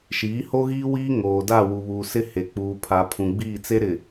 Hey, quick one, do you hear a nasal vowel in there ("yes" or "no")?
yes